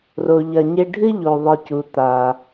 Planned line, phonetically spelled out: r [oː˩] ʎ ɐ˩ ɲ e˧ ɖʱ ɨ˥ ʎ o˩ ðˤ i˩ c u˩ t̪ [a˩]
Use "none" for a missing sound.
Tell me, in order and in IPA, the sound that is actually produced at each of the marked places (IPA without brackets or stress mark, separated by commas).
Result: o˩, a˩